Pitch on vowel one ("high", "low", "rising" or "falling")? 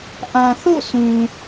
low